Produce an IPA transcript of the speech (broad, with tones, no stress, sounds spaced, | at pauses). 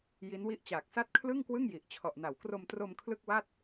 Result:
j i˦˥ n w i˥˩ ʔ t͡ɕ aː˨˩ k̚ s a˥˩ t̚ kʰ l ɯ˥˩ ŋ k w ɯ˥˩ ŋ j i˨˩ ʔ t͡ɕʰ ɔ˨˩ ʔ n a˩˦ w k r o˧ m t r o˧ m kʰ l ɯ˥˩ k̚ w a˥˩ t̚